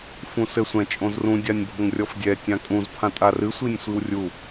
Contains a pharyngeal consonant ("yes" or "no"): no